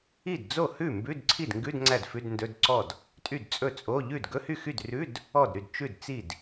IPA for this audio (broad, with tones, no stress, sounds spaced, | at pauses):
i˥˩ d d͡z o˥˩ h ʉ˥˩ m b ʉ˧˥˧ d ǀʰ i˥˩ d ŋ ɡ ʉ˧˥˧ d ŋ͡ǀ æ˥˩ d f ʉ˧˥˧ d n d ɵ˧˥˧ d ǀ ɔ˥˩ d | tʼ y˥˩ d t͡sʼ ɵ˥˩ t͡sʼ o˧˥˧ ʎ ʉ˥˩ d ɡ ɵ˧˥˧ h y˥˩ x y˥˩ d r ʉ˧˥˧ d | ɔ˥˩ d ɾ y˥˩ d t͡ʃ ʉ˥˩ d t͡s i˥˩ d